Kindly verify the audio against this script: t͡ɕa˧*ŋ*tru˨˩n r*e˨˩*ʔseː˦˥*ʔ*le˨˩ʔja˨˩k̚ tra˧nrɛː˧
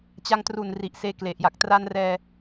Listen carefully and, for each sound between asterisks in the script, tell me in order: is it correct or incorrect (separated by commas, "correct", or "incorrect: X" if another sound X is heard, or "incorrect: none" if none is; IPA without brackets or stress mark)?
correct, incorrect: i˨˩, incorrect: k